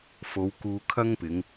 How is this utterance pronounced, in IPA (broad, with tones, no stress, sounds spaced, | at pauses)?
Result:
f o˨˧ w k uː˧ kʰ ɐ˥ ŋ p ɪ˨˧ ŋ